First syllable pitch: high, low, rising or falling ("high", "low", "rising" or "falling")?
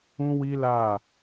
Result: high